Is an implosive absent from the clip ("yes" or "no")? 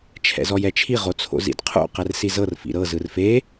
yes